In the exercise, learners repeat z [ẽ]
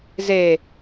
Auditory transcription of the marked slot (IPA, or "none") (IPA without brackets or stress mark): e